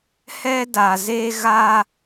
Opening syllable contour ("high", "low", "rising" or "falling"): high